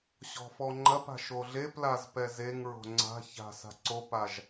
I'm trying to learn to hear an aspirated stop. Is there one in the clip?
no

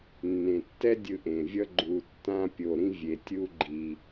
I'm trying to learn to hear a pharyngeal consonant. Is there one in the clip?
no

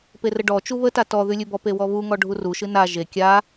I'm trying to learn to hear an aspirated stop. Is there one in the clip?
no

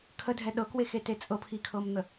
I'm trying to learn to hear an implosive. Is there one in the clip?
yes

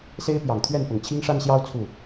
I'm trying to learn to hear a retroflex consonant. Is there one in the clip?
yes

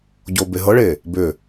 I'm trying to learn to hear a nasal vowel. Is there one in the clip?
no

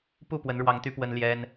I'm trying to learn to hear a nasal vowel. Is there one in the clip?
no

